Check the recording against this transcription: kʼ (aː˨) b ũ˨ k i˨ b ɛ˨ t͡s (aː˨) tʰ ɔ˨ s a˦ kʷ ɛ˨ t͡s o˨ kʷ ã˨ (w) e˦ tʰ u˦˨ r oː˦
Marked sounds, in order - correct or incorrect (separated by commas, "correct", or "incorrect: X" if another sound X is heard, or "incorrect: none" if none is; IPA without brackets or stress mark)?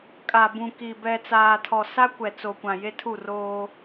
incorrect: a˨, correct, incorrect: j